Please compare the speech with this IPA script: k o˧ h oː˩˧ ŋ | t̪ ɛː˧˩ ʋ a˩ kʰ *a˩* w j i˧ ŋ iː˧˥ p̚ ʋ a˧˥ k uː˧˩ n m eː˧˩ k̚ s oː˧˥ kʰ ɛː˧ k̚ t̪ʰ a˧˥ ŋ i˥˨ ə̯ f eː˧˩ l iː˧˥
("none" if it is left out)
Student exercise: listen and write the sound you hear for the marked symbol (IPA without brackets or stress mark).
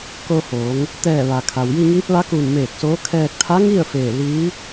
a˩